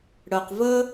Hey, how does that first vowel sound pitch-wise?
low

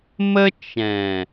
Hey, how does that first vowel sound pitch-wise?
high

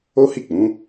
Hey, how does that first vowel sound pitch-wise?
high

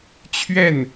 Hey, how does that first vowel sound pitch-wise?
falling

